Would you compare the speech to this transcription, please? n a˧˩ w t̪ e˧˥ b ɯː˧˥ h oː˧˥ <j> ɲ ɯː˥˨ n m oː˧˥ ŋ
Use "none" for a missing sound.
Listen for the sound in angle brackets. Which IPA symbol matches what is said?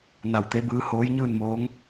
j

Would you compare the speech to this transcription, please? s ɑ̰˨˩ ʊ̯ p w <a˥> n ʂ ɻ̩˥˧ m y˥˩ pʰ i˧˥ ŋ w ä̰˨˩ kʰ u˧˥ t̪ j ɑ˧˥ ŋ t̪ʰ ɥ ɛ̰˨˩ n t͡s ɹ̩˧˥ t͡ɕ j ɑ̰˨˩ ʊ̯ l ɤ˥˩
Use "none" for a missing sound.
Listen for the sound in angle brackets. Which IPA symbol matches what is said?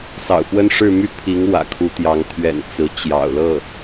ə˥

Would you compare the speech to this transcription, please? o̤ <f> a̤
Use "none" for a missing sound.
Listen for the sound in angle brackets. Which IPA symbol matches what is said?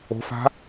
f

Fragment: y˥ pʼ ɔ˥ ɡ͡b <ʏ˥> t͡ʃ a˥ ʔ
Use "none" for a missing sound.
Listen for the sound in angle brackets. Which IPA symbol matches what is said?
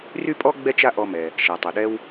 ɛ˥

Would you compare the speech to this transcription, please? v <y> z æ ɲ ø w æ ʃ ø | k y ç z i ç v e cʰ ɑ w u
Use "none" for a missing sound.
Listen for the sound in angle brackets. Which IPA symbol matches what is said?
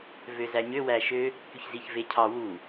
ø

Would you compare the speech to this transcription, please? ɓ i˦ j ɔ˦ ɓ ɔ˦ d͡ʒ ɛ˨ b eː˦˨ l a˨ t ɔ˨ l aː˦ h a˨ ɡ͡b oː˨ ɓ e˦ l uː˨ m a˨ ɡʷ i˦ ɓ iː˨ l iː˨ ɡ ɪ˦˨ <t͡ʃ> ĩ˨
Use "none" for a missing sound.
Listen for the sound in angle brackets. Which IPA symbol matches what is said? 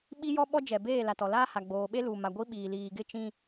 t͡ʃ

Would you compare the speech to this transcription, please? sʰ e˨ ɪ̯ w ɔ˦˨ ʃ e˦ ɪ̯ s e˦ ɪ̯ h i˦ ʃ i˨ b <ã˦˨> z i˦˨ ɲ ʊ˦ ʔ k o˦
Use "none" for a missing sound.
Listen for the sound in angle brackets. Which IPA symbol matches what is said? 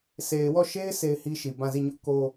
ã˦˨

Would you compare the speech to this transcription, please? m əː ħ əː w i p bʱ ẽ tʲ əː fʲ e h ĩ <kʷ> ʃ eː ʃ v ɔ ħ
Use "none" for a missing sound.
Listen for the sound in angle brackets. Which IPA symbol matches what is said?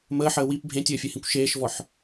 kʷ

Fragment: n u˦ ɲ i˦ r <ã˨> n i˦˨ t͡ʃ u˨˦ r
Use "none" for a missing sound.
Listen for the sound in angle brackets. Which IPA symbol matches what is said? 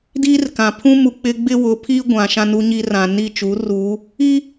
ã˨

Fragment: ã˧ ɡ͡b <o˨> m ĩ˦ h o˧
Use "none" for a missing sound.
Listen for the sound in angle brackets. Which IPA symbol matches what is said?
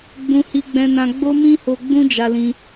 o˦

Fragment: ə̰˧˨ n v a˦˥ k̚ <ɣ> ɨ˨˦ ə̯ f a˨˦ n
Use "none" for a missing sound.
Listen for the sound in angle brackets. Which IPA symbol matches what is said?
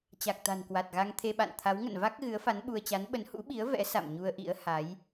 ɣ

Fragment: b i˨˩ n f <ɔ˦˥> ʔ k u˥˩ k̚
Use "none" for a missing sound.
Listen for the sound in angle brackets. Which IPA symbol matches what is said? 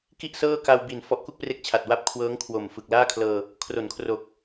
ɔ˦˥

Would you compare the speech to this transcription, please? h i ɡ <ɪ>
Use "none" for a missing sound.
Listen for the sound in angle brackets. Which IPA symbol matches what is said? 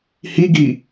i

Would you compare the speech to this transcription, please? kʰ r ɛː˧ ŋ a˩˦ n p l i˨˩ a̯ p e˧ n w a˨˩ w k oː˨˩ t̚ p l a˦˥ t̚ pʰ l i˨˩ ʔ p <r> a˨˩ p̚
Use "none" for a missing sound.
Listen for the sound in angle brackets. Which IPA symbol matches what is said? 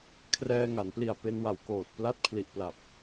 l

